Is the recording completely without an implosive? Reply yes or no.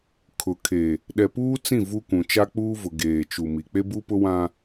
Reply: no